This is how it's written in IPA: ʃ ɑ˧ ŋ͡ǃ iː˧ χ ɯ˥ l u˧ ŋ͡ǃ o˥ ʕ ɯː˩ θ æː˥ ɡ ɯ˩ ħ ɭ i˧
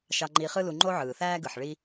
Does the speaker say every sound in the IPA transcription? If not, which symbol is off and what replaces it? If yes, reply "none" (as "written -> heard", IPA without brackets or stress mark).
none